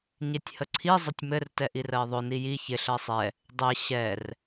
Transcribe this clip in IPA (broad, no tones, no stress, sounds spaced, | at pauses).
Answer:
ɲ e tʲ h ə ǀʰ i zˤ ə tʲ m ɘ r t ɛ ʔ i r ɜ ɪ̯ ðˤ ɵ n i j i ç ɪ ɬ ɜ sˤ ɛ | dˤ e ɕ ɛ r